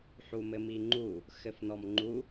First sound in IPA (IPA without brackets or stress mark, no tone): ħ